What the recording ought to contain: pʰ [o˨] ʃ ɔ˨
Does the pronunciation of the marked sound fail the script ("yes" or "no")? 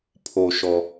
no